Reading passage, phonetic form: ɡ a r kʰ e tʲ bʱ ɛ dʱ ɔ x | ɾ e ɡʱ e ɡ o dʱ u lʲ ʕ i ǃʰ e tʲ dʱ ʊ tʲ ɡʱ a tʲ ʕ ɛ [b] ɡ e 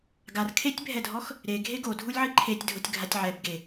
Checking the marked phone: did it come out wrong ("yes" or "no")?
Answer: no